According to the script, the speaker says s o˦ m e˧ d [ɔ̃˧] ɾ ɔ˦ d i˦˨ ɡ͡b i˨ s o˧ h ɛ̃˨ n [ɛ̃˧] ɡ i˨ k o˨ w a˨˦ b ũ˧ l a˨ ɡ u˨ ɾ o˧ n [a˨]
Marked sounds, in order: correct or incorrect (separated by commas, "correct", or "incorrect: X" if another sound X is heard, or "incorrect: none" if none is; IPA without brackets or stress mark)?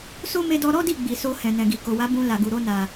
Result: incorrect: ɔ˧, incorrect: ɛ̃˨, correct